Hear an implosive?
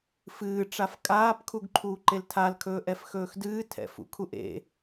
no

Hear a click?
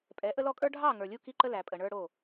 yes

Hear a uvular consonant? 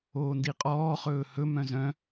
yes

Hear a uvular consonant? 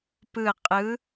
yes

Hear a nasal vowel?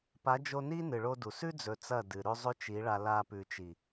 no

